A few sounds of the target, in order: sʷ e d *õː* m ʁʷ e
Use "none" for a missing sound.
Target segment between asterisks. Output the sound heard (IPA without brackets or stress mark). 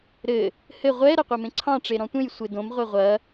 õ